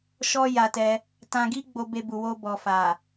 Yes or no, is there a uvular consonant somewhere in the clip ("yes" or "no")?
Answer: no